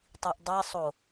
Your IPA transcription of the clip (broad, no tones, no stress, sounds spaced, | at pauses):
tˤ i ʔ dˤ e sˤ o